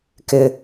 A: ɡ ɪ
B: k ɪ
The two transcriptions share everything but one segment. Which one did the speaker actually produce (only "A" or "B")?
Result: B